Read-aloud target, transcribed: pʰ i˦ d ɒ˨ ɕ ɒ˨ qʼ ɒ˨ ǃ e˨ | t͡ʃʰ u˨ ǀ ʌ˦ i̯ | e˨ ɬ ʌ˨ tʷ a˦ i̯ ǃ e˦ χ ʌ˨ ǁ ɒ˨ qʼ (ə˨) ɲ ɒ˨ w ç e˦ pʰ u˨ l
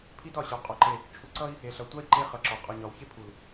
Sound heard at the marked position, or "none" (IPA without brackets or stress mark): ɔ˨